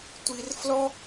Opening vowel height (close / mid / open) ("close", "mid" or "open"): close